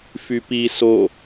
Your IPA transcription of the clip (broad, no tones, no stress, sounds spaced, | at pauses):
f y p i s o